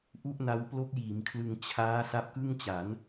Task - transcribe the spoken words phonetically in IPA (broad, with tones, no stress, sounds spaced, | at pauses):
ʔ u˥˩ ʔ n a˦˥ w p l o˦˥ k̚ j iː˩˦ m kʰ l ɯ˧ ŋ t͡ɕʰ aː˦˥ s a˦˥ p̚ k ɯ˥˩ ŋ t͡ɕ a˩˦ n